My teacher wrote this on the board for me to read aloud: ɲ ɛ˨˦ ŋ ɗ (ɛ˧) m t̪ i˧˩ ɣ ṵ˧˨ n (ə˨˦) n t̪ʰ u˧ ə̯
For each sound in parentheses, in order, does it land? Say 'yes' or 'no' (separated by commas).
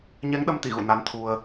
no, no